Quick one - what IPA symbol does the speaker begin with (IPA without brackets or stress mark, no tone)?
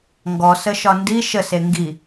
ŋ